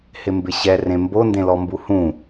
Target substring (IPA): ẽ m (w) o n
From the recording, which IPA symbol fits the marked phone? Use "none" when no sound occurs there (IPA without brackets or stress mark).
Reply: b